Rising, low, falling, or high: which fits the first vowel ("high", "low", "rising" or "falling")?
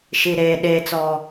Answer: low